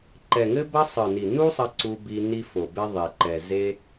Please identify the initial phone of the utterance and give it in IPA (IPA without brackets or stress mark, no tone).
ǃ